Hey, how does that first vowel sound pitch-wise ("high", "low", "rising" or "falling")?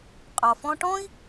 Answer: low